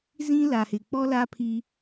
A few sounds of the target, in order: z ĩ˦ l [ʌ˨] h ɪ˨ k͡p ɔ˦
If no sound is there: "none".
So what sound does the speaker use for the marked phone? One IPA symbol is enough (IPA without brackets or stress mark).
a˨